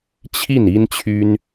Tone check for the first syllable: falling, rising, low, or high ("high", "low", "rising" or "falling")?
falling